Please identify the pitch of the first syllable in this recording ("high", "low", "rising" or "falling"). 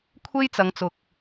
high